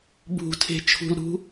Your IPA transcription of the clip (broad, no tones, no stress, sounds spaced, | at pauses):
b ṳ tʰ e̤ t͡ʃʰ ṳ l ɾ ṳ